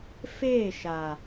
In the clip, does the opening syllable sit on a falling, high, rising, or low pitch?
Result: falling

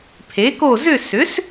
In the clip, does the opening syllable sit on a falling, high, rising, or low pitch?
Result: rising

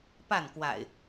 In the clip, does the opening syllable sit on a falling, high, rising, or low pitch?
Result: falling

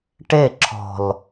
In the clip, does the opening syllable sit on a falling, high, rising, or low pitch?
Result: falling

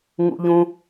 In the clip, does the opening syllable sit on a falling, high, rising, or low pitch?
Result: high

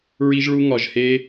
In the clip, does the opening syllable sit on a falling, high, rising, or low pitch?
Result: high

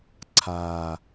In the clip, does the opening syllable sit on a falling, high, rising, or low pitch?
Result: low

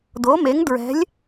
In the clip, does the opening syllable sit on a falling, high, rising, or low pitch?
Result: rising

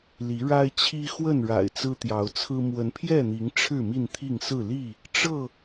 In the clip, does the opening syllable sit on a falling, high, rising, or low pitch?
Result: rising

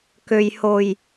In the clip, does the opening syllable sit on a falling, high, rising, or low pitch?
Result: low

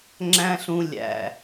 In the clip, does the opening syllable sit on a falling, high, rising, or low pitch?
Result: high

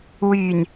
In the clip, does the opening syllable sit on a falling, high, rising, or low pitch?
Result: low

